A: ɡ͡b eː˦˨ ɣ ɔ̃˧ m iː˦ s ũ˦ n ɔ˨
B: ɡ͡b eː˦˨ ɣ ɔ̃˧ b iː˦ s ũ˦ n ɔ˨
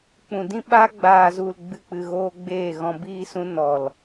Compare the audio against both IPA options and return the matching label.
B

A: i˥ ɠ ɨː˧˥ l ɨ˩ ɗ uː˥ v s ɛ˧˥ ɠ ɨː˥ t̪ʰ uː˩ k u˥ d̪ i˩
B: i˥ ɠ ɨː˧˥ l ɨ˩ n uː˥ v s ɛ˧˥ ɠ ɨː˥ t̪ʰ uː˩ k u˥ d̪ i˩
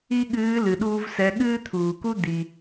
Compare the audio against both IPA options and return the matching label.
A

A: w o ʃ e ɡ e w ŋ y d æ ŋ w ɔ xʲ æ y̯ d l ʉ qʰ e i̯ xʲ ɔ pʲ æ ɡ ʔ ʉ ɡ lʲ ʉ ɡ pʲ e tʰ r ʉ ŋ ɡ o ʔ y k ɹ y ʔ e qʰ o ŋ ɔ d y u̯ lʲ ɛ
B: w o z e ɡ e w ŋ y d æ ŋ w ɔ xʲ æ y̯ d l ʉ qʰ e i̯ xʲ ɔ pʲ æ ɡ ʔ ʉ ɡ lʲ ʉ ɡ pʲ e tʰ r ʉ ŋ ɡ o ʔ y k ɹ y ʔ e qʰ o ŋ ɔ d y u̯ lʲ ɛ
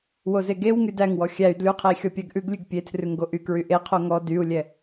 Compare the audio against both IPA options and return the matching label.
B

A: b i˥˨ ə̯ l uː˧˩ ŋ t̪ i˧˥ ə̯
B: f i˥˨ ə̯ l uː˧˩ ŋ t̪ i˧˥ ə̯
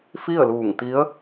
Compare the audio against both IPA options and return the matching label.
B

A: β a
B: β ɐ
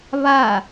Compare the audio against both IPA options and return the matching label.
A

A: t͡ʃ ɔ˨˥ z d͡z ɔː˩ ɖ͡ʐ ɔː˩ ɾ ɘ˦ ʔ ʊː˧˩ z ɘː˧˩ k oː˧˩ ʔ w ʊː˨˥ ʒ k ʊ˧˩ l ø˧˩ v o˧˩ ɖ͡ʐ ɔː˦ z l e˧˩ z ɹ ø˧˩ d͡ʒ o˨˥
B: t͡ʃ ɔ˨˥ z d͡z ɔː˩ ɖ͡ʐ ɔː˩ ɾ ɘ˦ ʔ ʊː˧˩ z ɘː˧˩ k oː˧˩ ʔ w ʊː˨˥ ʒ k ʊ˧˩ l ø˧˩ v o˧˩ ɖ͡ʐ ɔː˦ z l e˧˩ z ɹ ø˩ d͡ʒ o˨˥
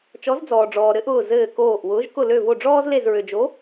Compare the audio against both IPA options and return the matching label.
B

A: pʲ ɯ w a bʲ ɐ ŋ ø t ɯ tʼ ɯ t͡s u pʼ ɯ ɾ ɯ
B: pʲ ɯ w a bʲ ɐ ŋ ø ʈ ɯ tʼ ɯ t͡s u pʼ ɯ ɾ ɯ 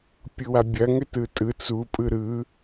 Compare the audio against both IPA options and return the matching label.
A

